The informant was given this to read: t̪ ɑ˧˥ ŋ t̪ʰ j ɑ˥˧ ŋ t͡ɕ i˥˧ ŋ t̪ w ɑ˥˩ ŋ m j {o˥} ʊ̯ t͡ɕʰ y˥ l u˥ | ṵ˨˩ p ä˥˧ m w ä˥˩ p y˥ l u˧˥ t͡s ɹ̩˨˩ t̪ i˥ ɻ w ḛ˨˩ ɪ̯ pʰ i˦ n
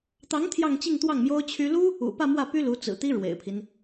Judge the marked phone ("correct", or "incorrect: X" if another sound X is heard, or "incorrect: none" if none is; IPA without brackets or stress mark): correct